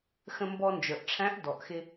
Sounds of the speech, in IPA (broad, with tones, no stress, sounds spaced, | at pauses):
x ə̃˧ m b ɔ˧ n d͡ʒ ə˞˩ ʔ ʈ͡ʂʰ æ̃˧˥ ʔ d ɔ˩ ʔ x ɪ˧